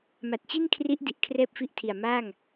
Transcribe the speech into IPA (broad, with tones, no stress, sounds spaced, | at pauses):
m a˨˩ t̚ t͡ɕ i˥˩ n kʰ r i˦˥ ʔ d i˨˩ ʔ kʰ r ɛː˥˩ p̚ f i˥˩ ʔ tʰ i˨˩ a̯ m aː˥˩ ŋ